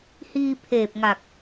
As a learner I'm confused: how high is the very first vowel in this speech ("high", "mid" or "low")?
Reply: high